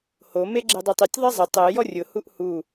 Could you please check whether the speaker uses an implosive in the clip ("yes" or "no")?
no